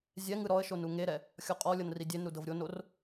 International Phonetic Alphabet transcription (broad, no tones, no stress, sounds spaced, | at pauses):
zʲ ɛ ŋ ɯ ɾ ɔ ə̯ ʃ o n u ŋ e ɾ ɛ | xʲ ɔ qʼ ɔ lʲ ɤ n r i dʲ e n ɾ u d ɤ v ɾʲ o n o r